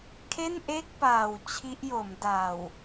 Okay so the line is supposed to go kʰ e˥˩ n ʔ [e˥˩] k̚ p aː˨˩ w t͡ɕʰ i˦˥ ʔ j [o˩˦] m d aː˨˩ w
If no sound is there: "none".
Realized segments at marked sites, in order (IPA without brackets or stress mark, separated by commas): e˥˩, o˩˦